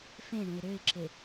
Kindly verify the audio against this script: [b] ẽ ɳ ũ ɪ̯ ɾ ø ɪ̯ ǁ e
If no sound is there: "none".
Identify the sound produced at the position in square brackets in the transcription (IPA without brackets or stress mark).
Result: f